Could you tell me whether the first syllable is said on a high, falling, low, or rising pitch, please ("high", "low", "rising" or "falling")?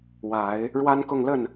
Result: low